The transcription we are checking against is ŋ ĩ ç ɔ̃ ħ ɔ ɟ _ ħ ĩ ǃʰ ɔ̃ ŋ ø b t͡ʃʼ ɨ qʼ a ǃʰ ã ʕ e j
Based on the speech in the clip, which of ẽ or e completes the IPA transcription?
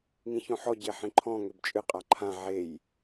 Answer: e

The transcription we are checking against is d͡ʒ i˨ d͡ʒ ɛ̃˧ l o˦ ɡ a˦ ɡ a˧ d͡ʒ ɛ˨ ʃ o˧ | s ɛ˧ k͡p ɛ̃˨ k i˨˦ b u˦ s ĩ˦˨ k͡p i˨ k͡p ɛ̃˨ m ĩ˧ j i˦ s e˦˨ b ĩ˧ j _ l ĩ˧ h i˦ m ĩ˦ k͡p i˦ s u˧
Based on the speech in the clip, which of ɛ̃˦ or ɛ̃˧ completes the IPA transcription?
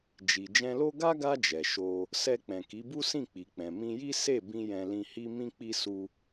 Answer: ɛ̃˧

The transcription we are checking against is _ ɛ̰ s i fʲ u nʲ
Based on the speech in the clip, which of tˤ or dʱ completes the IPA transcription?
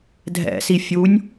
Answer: dʱ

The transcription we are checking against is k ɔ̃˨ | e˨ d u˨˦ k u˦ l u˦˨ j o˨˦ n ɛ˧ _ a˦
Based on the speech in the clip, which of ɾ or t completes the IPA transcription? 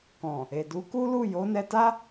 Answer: t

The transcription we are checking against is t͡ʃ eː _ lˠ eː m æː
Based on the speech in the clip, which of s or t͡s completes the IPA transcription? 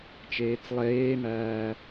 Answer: t͡s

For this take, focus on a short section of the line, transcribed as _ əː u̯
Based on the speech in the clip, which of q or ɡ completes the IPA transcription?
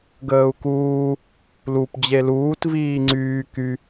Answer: ɡ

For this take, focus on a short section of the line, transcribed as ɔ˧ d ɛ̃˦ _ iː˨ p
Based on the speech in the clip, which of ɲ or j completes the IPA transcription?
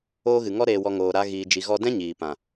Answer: ɲ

